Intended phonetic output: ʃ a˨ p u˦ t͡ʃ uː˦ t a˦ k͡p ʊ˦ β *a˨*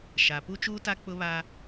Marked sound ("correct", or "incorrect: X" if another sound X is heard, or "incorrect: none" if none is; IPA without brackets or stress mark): incorrect: a˦